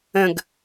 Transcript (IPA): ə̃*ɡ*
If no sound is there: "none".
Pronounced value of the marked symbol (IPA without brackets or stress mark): ɡ